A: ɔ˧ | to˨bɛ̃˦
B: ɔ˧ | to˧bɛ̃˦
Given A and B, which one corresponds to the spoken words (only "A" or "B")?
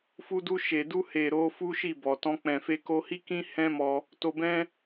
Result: B